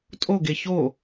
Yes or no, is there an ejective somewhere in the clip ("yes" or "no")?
yes